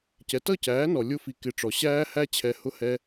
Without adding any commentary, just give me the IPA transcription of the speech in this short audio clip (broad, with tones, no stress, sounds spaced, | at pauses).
c ɛ˨ t ʌ˦˨ c æː˨˦ n ɔ˨ lʲ ʊ˧ f i˨ k ɪ˨ ʈ͡ʂ ɔ˨ ɕ æː˦ h æ˦ t͡ɕʰ ɛ˧ h ʊ˦ h ɛ˦